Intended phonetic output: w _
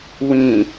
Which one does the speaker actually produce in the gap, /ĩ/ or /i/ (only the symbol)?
ĩ